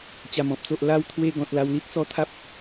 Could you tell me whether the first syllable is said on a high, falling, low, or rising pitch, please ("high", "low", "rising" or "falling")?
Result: low